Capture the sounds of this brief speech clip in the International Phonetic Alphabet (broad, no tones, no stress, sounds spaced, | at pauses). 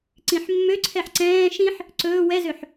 ǀ ĩ ħ mː ø ǀʰ ɛ ħ ǀ ɛ̃ː ʃ ĩ ħ | ǀ ɵː w ɛ z ø ħ